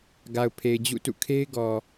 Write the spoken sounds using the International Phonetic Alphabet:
ɡ a˨ ʊ̯ pʰ e˨ ɪ̯ d͡ʑ ṵ˦˨ t ṵ˦˨ kʰ e˦ ɪ̯ ɡ ɔ˨

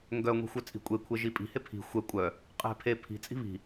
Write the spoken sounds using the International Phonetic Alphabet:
ŋ ɡ œ ŋʷ i̤ xʷ œ t͡sʼ i̤ kʷʼ e kʷʰ e ʒ i pʼ i̤ h e pʰ i̤ xʷ ɛ kʷʼ œ | qʼ ɛ̤ pʰ e pʰ i̤ t͡sʼ i̤ β i̤

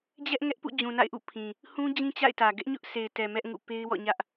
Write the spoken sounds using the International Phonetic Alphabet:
d͡ʑ ɛ˦ ʔ ŋ ɛ˦ ʔ p ṵ˦˨ d͡ʑ ũ˨ n a̰˦˨ ɪ̯ ʔ ṵ˦˨ pʰ ĩ˨ | h ũ˦ d͡ʑ ĩ˦ t͡ɕ a̰˦˨ ɪ̯ t ä˨ ɡ ɛ˦ ʔ ɲ ʊ˦ ʔ s e˨ ɪ̯ t ɛ˨ m ɛ˦ ʔ ŋ ṵ˦˨ p e˦ ɪ̯ w ɔ̰˦˨ ɲ ä˦ ʔ

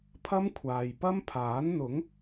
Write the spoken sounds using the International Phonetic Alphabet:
pʰ ɐ˥ m kʷʰ aː˨ j p ɐ˥ m pʰ aː˨˥ n n̪ ʊ˨˥ ŋ

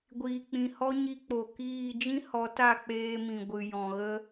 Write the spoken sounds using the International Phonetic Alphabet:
ɡʷ iː˨ k͡p ĩ˨ h ɔ˦ ɲ i˧ k͡p o˨ k iː˦˨ d͡ʒ ĩ˦ h ɔ˨˦ t a˦˨ k͡p eː˧ m ĩ˨ ɡʷ ɨ˨ j ɔ̃˨ ɣ ə˦

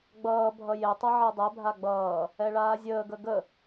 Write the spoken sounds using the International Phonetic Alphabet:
ɡ͡b ʌː bʱ ʌ j e tˤ ʌ ʕ ɛ dˤ ɛ bʱ a ɡ͡b ʌː | ɛ ɭ aː zʲ əː ɡ ə ɡ ə

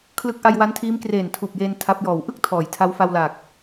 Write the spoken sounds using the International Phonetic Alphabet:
kʰ l ɯ˦˥ k̚ ʔ a˧ j w a˦˥ n tʰ iː˦˥ m k r eː˨˩ n tʰ uː˨˩ p̚ j eː˧ n tʰ a˦˥ p̚ j ɔː˨˩ w ʔ ɯ˥˩ k̚ tʰ ɔː˩˦ j tʰ a˦˥ w f a˧ w l aː˨˩ k̚

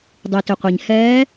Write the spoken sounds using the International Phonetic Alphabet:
dˤ i˩ t ʏ˩ qʷ ɛ˩ ɲ h ɛː˧˥

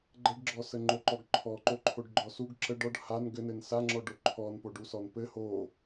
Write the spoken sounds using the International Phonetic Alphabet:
ɡ͡ǃ ə ɖ ɡ͡ǁ ɔ s ə ŋ͡ǃ o ǃ ɔ ɡ ǃʰ ɔ ǃ o ǃʰ o ɖ ɡ͡ǃ ɔ s u ɡ ǁ ə ɖ ɔ ɖ h a n ɡ ɘ n ɘ n s a ŋ͡ǁ ɔ ɖ o ǃʰ ɔ n p o ɖ u s ɔ n p ɘ h o

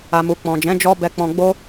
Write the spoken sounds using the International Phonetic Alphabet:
a˨ m u˨ k͡p ɔ̃˨ d͡ʒ ɛ̃˨˦ d͡ʒ ɔ˧ b ɛ˨ k͡p ɔ̃˨ ɡ͡b o˧

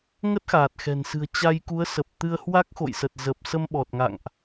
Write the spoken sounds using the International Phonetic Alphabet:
ŋ ə˦˥ t̚ x aː˨˩ t̚ x ɛ̤˨˩ n s ɨ̤˨˩ ə̯ t͡ɕ a˧ j k u˨˦ ə̯ s ə˨˩ p̚ t̪ ɨ˧ ə̯ h w a˦˥ k̚ x o̰˧˨ j s ə˨˩ t̚ z ə˨˩ p̚ s ə˧ m ɓ ɔ˨˩ t̚ ŋ a̰˧˨ ŋ ʔ

